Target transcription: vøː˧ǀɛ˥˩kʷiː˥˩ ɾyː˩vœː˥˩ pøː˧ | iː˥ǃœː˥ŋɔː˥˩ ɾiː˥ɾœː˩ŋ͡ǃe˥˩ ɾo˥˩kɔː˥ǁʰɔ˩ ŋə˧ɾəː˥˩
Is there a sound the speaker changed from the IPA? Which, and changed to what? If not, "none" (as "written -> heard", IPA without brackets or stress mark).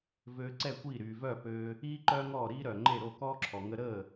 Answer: none